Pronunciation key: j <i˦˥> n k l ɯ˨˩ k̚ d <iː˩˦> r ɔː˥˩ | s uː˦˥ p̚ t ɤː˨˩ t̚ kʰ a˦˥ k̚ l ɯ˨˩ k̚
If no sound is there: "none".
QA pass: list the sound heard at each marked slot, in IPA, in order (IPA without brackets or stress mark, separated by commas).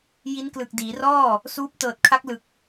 i˦˥, iː˩˦